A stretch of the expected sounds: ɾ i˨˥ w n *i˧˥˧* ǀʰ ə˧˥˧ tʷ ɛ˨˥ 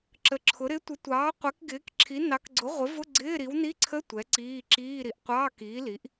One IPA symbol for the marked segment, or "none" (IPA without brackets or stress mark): i˧˥˧